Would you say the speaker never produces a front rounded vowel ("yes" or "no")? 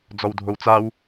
yes